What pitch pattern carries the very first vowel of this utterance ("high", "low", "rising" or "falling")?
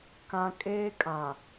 low